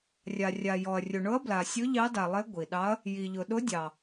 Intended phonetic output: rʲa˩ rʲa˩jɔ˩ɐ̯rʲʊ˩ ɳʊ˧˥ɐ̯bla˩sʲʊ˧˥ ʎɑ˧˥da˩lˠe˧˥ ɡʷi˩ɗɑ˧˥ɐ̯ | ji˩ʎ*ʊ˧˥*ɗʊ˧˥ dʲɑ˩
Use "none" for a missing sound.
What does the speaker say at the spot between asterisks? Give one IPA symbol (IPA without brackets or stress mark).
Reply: ʊ˩